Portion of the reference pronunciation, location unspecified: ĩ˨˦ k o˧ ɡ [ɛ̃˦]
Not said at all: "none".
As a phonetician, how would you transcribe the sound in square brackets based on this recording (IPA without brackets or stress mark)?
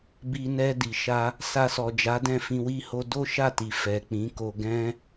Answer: ɛ̃˦